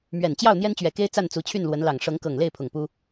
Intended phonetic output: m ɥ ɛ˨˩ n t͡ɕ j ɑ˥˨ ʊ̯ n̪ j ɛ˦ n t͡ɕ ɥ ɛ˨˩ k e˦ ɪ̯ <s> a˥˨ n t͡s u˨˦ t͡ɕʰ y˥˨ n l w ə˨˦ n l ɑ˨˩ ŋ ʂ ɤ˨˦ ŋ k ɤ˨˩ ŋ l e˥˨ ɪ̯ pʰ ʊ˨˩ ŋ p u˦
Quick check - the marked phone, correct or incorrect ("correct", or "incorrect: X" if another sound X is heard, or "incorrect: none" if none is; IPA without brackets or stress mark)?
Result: incorrect: t͡s